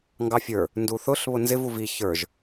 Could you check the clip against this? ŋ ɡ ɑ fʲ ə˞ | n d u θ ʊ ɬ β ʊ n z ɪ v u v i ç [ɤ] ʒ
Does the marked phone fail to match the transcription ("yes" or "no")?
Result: yes